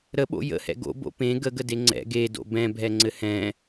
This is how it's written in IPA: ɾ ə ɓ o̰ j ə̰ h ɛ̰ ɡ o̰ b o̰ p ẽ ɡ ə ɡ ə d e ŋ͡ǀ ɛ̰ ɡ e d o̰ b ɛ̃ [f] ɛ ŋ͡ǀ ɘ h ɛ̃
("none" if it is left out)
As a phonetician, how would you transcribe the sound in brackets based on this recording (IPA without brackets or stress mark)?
bʱ